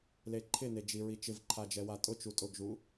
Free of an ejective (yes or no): no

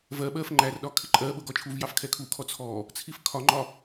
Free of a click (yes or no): no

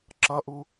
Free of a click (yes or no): no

